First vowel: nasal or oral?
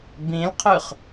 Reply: nasal